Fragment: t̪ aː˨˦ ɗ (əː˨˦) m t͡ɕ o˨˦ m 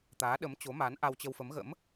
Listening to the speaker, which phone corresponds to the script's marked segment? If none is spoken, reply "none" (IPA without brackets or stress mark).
ə˨˦